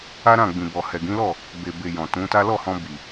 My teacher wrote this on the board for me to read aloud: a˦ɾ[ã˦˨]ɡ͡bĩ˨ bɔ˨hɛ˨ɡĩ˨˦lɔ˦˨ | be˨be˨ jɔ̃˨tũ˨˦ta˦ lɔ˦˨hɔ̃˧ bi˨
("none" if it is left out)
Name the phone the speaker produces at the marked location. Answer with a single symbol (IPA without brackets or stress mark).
ã˦˨